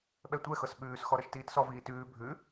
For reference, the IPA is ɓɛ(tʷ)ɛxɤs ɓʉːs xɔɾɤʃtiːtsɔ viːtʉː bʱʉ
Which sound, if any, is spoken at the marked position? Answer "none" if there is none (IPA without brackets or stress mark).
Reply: tʷ